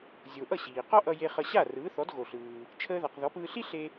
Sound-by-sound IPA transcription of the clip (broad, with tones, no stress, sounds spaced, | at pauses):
zʲ o˩ ʔ ʌ˥˩ ɕ iː˩ q ɔ˥ ʔ ʌ˧ j e˧ χ ʌ˧ ɕ a˥˩ r ɯː˩˥ θ ɔ˩˥ d ɣ o˩ ɬ ɯː˩ | t͡ʃʰ əː˧ ð a˩ q ð ɔ˩˥ p ɯː˧ ɬ i˥ ɬ e˧